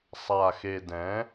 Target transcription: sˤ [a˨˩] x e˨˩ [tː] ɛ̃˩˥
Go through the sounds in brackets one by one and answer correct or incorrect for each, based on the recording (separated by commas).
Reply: correct, incorrect